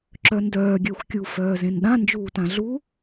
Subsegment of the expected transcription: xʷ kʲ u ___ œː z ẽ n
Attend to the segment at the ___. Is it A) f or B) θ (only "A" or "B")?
A